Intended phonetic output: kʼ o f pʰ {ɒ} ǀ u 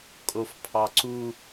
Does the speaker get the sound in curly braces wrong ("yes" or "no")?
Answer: yes